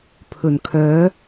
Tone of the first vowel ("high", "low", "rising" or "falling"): low